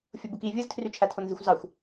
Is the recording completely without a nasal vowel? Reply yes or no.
yes